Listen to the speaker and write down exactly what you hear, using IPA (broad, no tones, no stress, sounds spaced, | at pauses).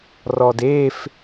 r ɔ d eː f